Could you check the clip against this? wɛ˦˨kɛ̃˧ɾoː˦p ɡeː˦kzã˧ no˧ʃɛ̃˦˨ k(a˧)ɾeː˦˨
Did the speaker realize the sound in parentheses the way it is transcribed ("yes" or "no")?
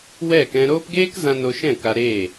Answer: yes